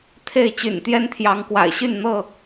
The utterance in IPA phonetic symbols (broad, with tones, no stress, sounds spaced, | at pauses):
t̪ʰ e˥˨ ɪ̯ t͡ɕ y̰˨˩ n t̪ j ɛ˦ n t̪ʰ j ɑ˨˦ ŋ k w a̰˨˩ ɪ̯ ɕ y˥˨ n n̪ ɤ˥˨